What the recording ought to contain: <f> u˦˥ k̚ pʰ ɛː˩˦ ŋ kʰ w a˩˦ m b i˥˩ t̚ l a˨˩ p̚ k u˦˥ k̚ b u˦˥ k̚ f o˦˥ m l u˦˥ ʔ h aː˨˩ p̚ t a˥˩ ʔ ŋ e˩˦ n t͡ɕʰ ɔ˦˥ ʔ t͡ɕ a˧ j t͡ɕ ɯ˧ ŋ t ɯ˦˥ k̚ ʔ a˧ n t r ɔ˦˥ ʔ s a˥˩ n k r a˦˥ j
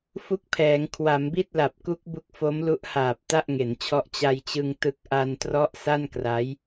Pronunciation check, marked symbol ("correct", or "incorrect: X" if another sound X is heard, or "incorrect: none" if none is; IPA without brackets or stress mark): correct